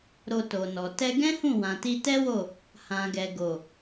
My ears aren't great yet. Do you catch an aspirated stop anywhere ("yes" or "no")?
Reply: no